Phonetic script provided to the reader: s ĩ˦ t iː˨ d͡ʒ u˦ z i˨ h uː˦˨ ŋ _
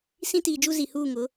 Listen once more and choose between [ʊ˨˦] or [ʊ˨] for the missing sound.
ʊ˨˦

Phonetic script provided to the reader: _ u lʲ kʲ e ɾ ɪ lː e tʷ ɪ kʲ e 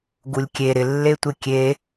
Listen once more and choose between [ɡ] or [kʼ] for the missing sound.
ɡ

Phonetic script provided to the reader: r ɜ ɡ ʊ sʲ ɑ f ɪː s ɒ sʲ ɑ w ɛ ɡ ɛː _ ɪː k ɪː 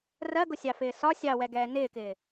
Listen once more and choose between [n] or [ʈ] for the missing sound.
n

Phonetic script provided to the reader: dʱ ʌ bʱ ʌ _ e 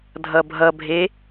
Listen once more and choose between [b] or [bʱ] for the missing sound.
bʱ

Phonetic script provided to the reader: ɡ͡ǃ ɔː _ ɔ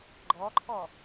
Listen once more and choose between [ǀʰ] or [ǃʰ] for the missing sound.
ǃʰ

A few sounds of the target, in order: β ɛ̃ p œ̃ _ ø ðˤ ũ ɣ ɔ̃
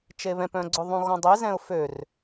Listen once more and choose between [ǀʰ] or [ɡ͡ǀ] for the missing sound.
ɡ͡ǀ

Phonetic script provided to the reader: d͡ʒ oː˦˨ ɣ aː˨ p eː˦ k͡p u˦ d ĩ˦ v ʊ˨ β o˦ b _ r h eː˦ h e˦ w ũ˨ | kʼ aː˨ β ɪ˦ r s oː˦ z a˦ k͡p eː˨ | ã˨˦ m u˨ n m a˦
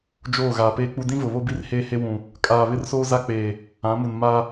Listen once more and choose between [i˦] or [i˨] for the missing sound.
i˦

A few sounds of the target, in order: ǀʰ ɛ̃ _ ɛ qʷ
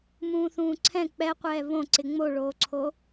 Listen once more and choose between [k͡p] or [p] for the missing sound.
k͡p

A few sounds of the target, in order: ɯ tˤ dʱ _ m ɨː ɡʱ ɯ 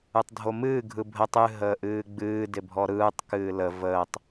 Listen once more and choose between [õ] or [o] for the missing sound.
o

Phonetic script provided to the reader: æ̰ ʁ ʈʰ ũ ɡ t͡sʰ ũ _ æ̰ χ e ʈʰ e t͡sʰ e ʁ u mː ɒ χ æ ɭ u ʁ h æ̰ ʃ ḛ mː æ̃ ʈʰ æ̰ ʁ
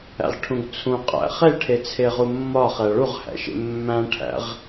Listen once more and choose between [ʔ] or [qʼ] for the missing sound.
qʼ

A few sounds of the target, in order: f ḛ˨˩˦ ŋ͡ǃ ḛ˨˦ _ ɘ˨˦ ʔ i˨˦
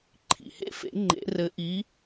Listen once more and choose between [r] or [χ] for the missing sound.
r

